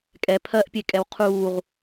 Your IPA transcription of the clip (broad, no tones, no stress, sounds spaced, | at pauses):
kʼ ɛ pʰ ɜ ʔ pʲ e kʼ ɛ w qʰ uː ʁ